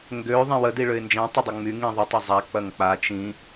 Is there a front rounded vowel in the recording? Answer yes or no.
yes